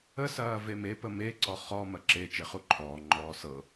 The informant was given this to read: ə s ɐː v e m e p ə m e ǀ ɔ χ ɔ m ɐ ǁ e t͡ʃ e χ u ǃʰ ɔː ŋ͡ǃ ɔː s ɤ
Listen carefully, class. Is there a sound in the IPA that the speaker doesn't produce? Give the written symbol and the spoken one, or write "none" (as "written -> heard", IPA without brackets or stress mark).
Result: none